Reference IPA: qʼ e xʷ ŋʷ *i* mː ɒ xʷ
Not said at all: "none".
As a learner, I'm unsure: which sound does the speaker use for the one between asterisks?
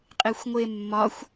e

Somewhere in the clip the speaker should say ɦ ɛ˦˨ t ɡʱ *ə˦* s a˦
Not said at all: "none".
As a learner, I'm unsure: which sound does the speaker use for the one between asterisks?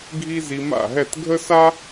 ə˦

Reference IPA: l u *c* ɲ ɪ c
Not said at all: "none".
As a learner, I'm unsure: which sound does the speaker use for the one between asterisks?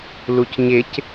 c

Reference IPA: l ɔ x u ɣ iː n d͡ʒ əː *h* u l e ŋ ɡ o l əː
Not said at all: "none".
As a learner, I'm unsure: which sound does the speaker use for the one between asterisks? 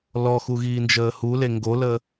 h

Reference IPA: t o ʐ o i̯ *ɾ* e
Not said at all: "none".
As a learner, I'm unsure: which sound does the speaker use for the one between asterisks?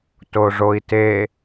t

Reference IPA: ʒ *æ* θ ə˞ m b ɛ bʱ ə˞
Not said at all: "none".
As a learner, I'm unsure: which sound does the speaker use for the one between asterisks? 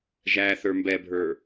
æ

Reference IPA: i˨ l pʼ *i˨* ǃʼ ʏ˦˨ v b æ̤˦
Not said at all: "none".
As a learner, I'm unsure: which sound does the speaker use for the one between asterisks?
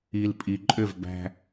i˨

